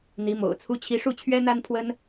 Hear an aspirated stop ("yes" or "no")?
yes